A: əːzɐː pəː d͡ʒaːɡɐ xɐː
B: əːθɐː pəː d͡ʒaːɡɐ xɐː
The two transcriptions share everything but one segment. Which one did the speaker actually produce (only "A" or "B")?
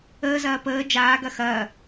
A